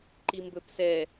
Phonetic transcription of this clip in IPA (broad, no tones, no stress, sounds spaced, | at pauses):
ǃ i m b ɵ p s ɛ